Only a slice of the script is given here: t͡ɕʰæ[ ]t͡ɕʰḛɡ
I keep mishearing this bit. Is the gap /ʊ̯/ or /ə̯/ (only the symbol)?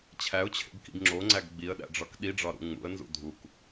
ʊ̯